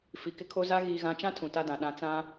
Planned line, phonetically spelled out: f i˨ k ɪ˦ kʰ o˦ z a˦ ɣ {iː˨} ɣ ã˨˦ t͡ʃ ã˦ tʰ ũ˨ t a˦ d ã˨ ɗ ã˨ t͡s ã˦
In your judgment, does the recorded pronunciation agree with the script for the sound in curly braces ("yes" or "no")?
yes